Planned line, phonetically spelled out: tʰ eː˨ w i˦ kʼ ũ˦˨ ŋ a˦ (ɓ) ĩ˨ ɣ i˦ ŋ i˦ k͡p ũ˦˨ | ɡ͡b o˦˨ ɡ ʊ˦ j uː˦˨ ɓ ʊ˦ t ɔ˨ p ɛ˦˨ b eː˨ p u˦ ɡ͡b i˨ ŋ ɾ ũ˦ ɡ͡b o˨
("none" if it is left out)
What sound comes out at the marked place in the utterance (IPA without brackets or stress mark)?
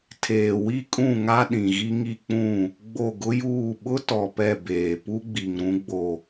ɗ